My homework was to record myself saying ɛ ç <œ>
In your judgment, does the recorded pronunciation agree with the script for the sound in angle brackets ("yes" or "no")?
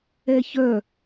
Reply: yes